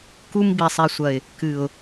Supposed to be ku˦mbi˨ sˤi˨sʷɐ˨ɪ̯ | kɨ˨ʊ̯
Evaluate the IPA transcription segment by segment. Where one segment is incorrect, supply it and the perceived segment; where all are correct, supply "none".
none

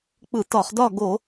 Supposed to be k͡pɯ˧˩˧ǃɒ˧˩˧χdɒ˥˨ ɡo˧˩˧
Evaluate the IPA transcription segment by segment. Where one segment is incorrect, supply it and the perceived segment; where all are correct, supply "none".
ǃ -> t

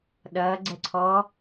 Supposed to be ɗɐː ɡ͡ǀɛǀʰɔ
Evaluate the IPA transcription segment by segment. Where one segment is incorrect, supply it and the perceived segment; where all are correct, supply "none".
none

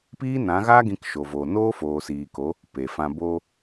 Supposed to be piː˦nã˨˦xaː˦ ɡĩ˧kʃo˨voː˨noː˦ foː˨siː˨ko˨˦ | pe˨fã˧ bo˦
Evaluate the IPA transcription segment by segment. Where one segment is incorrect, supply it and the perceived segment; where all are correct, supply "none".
x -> ɣ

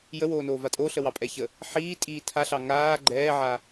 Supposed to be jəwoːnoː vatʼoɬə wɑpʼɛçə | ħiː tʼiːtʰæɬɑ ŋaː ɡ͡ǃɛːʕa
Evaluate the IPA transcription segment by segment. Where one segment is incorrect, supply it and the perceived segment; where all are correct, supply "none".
æ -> a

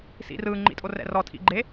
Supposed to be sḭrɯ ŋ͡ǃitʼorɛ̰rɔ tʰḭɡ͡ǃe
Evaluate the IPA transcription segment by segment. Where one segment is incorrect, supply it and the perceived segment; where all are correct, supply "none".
i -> ḭ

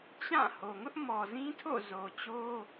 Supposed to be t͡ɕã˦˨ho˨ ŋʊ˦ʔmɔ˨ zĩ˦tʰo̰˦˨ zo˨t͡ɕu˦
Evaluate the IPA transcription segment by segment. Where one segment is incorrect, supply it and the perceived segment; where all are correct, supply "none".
u˦ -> o˦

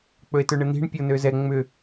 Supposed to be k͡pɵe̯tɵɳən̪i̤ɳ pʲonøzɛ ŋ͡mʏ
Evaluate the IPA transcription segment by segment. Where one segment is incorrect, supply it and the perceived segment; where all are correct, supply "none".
none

